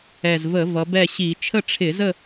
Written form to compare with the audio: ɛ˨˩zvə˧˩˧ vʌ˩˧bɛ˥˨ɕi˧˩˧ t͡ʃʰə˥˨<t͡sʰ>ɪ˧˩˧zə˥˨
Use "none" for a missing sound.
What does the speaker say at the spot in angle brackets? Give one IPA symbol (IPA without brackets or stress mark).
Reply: ʈ͡ʂʰ